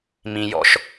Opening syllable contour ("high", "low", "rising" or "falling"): low